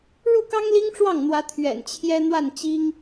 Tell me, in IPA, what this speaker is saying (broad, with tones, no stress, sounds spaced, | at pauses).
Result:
ɻ u˥˩ k ɑ˥ ŋ l i˥ ŋ ʈ͡ʂ w ɑ˥˩ ŋ n̪ w ä˧˥ t̪ʰ ɥ ɛ̰˨˩ n t͡ɕʰ j ɛ˥ n̪ w a˥˩ n t͡ɕ i˥ ŋ